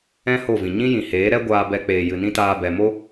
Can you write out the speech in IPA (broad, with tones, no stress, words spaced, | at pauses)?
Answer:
ɛ̃˦ ho˦˨vĩ˨ ɲĩ˦jĩ˨heː˨˦ ɾɛ˦ ɡʷaː˧ bɛ˧k͡peː˨jɨ˨nĩ˦ taː˧bɛ˨mo˦